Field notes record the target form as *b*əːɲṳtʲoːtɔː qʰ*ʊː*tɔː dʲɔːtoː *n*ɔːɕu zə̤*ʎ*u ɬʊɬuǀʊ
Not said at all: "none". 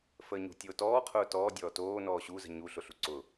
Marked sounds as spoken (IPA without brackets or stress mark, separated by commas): f, ʊː, n, ɲ